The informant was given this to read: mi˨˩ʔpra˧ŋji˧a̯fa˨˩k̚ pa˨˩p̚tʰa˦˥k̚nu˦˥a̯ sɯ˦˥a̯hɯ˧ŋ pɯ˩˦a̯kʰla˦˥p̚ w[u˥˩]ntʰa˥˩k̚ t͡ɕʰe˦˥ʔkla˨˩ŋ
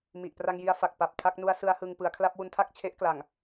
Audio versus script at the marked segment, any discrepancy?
yes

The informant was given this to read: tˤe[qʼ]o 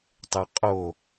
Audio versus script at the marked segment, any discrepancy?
no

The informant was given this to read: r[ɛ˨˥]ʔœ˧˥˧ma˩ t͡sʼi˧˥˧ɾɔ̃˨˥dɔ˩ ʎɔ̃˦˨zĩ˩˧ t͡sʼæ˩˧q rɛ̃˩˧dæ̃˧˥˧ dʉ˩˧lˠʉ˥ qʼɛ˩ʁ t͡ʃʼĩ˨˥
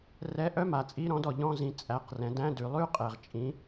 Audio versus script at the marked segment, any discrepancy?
no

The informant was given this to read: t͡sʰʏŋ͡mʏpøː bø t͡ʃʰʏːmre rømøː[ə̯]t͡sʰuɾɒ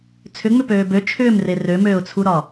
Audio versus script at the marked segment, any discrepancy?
yes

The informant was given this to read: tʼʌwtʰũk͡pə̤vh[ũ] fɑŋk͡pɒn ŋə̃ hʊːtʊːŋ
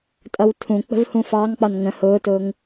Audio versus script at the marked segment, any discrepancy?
no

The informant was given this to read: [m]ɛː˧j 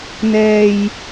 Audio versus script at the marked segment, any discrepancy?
yes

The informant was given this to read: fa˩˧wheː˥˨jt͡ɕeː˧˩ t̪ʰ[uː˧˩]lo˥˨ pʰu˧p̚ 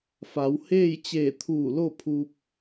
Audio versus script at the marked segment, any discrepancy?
no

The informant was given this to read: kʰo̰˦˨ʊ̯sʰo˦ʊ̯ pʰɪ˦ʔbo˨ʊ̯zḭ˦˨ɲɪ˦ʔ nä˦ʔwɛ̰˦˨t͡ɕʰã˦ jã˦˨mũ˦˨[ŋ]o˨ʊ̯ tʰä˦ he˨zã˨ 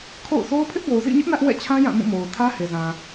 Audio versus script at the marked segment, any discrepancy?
yes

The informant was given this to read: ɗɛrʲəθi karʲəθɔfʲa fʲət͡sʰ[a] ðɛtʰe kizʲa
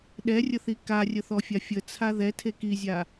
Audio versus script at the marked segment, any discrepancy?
no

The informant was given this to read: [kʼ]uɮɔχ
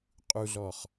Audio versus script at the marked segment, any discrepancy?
yes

